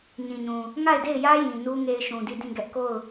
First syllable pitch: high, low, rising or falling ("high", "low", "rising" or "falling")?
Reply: low